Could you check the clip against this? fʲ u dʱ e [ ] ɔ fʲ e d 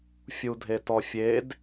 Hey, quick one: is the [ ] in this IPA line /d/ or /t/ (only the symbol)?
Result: t